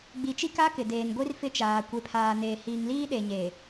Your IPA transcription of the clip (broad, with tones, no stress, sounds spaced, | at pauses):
ɡ͡b i˨ t͡ʃ i˦ k a˦ k ɪ˨ d eː˨ n ɡʷ i˦ r f ɪ˦ t͡ʃ aː˨ kʷ e˨ pʰ aː˨ n eː˨ h iː˨ ŋ l iː˦ ɗ e˨ ɲ eː˨